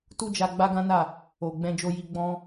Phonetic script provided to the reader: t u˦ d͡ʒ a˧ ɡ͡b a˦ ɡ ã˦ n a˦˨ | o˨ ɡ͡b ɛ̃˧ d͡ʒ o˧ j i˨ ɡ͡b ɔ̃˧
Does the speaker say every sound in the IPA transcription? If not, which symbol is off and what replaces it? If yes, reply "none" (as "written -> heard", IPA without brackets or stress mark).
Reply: i˨ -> i˧